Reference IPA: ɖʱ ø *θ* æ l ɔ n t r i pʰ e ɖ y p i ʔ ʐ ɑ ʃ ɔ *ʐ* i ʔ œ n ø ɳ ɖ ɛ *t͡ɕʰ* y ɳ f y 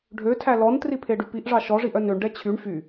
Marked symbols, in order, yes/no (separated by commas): no, yes, yes